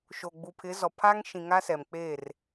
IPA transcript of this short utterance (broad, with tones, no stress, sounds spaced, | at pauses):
ʃ o˨ ɡ͡b u˨ pʰ ɪ˨˦ z ɔ˨ pʰ a˦ ŋ ʃ ĩ˨ ŋ a˦ s ɛ˨ m k͡p e˦˨ r